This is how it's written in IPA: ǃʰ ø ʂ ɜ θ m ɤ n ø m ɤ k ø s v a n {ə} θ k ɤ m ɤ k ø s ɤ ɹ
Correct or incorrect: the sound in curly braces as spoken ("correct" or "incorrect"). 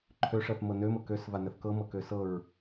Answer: correct